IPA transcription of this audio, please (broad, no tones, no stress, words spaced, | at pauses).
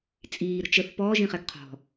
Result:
t͡sʼiːɾə̤ t͡ʃəθ pɔːʒĩχɛɡ qʰɔ̤